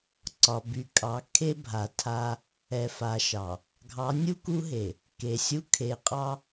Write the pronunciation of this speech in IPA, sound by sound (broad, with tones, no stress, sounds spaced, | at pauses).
ǀ ɒ˨ b y˨ kʼ ɑ˨˦ kʰ e˦ bʱ a˨ tʰ a˦ | ɛ˨ f a˨ ʃ ɑ˨ | ɡʱ ɑ˨˦ nʲ u˦ k u˦ ɦ e˨ | k e˨ sʲ u˦ kʰ e˨ qʼ ɑ˦